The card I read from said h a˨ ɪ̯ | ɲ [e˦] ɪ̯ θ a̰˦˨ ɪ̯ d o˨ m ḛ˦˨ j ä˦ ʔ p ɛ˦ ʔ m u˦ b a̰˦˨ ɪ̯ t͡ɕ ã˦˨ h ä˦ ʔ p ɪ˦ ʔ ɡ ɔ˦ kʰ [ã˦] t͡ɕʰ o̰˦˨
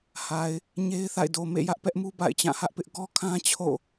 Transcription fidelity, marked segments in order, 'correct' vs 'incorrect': correct, correct

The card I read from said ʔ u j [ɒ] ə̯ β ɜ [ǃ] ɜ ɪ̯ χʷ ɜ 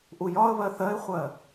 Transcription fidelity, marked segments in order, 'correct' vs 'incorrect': correct, incorrect

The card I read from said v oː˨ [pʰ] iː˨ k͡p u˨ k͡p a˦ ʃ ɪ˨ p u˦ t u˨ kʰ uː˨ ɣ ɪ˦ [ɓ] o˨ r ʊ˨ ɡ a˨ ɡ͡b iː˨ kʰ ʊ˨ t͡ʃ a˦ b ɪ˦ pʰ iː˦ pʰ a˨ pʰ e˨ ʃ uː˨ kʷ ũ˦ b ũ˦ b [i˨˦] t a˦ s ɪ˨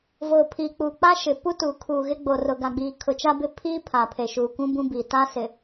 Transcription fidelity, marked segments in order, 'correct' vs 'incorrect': correct, incorrect, incorrect

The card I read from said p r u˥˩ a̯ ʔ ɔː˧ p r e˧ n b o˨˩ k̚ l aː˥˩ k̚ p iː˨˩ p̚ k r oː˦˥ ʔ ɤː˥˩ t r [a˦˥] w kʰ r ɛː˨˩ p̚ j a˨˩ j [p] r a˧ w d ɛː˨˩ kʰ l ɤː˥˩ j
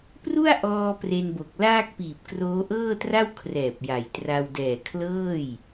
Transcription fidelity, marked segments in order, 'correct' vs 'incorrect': incorrect, incorrect

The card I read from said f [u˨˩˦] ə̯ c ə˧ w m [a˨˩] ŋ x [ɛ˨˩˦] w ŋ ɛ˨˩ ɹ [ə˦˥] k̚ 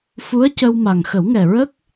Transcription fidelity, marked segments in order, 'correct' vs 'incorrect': incorrect, correct, incorrect, correct

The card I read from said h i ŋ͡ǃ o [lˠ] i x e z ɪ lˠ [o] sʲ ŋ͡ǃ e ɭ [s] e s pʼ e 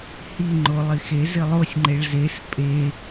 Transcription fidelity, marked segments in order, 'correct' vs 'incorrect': correct, correct, incorrect

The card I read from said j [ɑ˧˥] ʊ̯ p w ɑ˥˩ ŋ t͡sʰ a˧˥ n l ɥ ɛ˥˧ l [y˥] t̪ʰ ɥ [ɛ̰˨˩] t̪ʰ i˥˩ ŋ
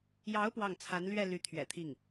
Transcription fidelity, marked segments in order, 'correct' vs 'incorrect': correct, incorrect, correct

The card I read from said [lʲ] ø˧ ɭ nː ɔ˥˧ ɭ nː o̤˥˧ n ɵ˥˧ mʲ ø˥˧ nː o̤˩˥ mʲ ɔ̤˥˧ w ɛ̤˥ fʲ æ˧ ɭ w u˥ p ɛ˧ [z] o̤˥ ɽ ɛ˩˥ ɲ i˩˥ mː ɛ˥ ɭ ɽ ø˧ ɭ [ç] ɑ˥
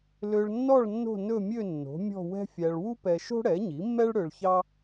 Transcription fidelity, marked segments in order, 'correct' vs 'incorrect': incorrect, incorrect, correct

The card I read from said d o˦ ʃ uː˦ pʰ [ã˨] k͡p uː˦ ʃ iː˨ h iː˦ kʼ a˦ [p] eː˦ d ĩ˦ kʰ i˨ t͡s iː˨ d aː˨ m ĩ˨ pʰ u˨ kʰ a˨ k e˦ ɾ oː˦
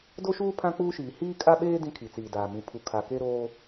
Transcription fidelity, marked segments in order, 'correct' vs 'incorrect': incorrect, incorrect

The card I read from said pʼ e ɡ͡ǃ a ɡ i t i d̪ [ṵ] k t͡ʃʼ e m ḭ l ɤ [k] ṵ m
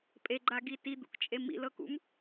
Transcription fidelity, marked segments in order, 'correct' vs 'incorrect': correct, correct

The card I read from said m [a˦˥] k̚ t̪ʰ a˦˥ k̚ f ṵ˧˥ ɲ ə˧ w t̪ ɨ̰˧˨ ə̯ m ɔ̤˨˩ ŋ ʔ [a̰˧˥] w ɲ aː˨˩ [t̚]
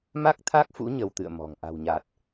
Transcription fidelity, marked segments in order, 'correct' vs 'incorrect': correct, incorrect, correct

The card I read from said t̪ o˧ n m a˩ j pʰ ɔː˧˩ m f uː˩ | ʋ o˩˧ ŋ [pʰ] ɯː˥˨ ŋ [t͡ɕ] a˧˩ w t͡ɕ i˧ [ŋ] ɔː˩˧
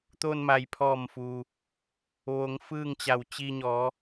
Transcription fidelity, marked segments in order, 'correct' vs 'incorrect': incorrect, correct, incorrect

